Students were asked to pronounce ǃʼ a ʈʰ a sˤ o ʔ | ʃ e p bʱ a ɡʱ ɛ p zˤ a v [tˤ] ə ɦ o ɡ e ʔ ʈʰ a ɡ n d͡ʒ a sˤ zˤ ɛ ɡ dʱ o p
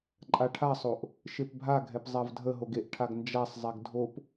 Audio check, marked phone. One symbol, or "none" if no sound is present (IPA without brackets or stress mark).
dʱ